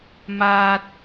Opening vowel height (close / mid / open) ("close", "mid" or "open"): open